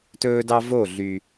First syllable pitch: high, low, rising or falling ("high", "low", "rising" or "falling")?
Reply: high